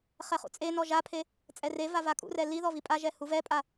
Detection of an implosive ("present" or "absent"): absent